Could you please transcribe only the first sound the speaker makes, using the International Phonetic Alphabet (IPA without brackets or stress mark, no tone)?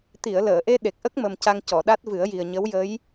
t̪